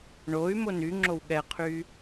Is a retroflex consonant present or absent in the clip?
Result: present